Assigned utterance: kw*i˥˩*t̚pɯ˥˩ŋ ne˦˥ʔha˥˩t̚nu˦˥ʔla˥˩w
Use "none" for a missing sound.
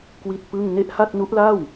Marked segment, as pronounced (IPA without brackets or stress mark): i˥˩